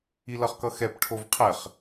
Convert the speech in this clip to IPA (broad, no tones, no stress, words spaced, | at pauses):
ilʌχkʌxɛp ʈʰovqʰɛχ